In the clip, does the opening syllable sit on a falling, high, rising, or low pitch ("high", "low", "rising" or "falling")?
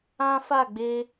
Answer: high